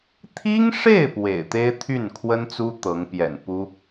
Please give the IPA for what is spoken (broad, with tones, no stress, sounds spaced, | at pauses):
t̪ʰ i˥ ŋ ʂ e˥˩ ɪ̯ p w ḛ˨˩ ɪ̯ t̪ e˥ ɪ̯ t̪ʰ y˥˩ n kʰ w ə˥ n t͡s u˥ t̪ ɤ˧˥ ŋ p j ɛ̰˨˩ n p u˥